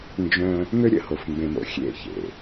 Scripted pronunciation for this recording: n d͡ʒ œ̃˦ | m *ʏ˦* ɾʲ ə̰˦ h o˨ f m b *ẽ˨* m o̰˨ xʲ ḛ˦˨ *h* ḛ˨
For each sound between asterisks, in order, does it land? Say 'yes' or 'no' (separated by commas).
yes, yes, no